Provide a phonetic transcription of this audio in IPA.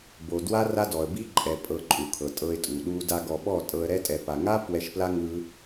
b o˨ d w a˦ r a˦ d ɔ˨ ə̯ b i˦ ǃʼ ɛ˨ pʼ ɤ˨ ǃʼ u˨ kʰ ɤ˨ tʼ ɤ˧ ɪ̯ tʼ u˨ ɗ u˧ d a˧ ɡ ɔ˨ ɓ ɔ˦˨ tʼ ɤ˧ ə̯ ɾ ɛ˦ tʼ ɛ˨ p a˨ ŋ a˦ p w ɛ˧ ʃ p l a˦ ŋ ɯ˦

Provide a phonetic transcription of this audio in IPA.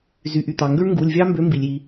z y˩ ʔ y˩ t̪ ɑ˩ ŋ ɡ ø˦˥ ɳ ŋ ɡ u˩˧˩ lʲ vʲ ɑ˦˥ m b ø˨˥ m b i˩ lʲ i˩

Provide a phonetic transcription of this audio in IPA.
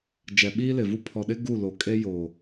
d͡ʒ ɛ˨ ɓ iː˦ l ɪ˨ v u˦ pʰ ɔ˨ ɗ ɪ˦ ɡ u˦˨ l o˨ kʼ e˦ j oː˨

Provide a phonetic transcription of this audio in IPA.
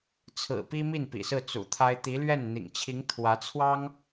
t͡sʰ ɹ̩˨˩ p i˥ m i˥˩ n p ḭ˨˩ s ɹ̩˥˩ t͡s ṵ˨˩ t̪ʰ a˥ ɪ̯ t̪ i˧˥ l ɥ ɛ˥˩ n n̪ ḭ˨˩ ŋ t͡ɕʰ i˧˥ ŋ t̪ʰ w ä˧˥ t͡sʰ w ɑ˥ ŋ

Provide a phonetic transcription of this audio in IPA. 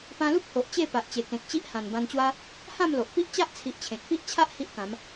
p ã˧ l u˦ p̚ h o˨ ʔ t͡ɕ e˥˧ p a˨ ʔ t͡ɕ e˨˩ k ẽ˨ k̚ t͡ɕ i˦ ʔ h ã˨˩ n b ã˧ n t͡ɕ w a˦ | h ã˥˧ m l o˨ ʔ p i˦ ʔ t͡ɕ a˦ ʔ t͡sʰ i˨ ʔ t͡ɕʰ ẽ˨ k̚ p i˦ ʔ t͡ɕʰ a˦ ʔ h i˦ ʔ k ã˨˦ m

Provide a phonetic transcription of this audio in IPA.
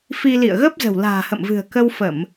f i˧ l ḭ˧˨ ə̯ ɣ ə˦˥ p̚ z ə̤˨˩ w l a̤ː˨˩ h ə̰˧˨ m v ɨ̤˨˩ ə̯ k ə˧ w f ə˧˩˨ m

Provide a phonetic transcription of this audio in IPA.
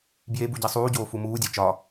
b j e b u ɟ i sˤ uː ɟ oː f u m uː dʲ æ t͡ʃ ɒ

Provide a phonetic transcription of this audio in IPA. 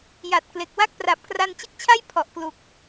j a˨˩ t̚ k l e˨˩ k̚ w a˥˩ k̚ p r a˨˩ p̚ k r a˧ n t͡ɕ ɯ˦˥ k̚ t͡ɕʰ a˥˩ j pʰ ɔ˨˩ ʔ k l u˨˩ k̚

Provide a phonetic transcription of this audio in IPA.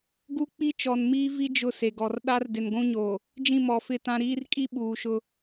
ɡ u˦ k͡p i˦ t͡ʃ ɔ˨ n m iː˦ v i˦ d͡ʒ ʊ˦˨ s e˨ ɡ ɔ˨ r ɗ a˦ r d ɪ˨ n ɡʷ ũ˦ ɲ o˨ | d͡ʒ ĩ˦˨ m ɔ˨ f ɪ˦˨ t ã˦ ɾ iː˦ r kʼ i˦ ɓ uː˨ ʃ ʊ˦

